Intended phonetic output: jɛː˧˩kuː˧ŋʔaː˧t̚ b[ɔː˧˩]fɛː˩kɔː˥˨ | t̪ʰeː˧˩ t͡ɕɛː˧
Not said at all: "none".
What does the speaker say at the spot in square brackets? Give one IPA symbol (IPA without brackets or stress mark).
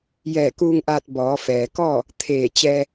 ɔː˩˧